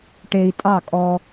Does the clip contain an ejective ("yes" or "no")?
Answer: yes